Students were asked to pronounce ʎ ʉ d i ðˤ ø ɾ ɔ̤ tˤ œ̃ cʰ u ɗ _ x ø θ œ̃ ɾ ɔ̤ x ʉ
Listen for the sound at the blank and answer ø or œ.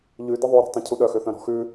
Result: œ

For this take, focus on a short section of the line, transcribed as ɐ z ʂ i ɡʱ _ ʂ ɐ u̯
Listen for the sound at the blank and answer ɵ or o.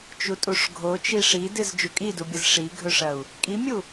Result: ɵ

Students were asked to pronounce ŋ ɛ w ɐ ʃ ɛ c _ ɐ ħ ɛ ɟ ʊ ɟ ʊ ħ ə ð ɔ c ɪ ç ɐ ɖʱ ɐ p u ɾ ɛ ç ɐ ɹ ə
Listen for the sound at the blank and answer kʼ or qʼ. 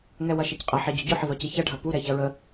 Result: qʼ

